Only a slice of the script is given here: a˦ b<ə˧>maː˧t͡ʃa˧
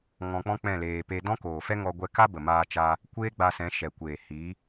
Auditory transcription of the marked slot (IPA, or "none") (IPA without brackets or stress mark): ə˨